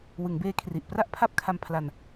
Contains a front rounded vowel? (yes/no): no